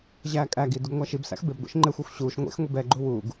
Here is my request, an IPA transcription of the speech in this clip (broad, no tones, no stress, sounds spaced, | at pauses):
ʑ æː kʼ æ ɡ i d u ɡ ŋʷ æ ʃ i b s æ̰ x b e b ɡʷ ḛ ʃ ŋ͡ǃ e xʷ ɛ xʷ ɕ uː ʃ ŋʷ ḛ x ŋʷ i b ɛ ɡ͡ǃ u w uː ɡ